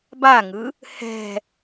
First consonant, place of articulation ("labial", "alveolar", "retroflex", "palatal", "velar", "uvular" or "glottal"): labial